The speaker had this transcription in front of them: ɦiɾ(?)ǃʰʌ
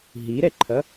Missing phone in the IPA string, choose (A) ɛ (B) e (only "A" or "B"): A